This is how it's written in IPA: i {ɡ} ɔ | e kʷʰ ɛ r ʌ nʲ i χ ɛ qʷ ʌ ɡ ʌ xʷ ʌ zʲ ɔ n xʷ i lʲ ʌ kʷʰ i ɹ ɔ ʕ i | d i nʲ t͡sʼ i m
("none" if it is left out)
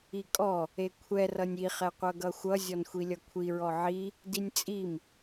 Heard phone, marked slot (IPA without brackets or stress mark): kʼ